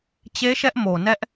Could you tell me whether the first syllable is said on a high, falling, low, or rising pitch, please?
high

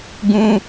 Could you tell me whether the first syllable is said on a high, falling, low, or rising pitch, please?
high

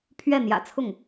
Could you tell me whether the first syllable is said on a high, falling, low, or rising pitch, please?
falling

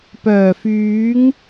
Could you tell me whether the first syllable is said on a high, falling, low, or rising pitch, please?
low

